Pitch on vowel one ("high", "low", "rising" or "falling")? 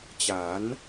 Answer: rising